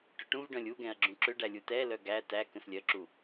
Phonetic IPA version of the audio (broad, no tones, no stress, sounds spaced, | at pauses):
ʈ ʏ ʈ ũ v ɖ œ̃ lʲ u ɡ ɛ̃ ɐ̯ ɡ͡ǁ ũ ǁ ʏ ɖ æ lʲ u t ɛ l œ ɡ æ t æ k ə̃ s lʲ œ ǁ u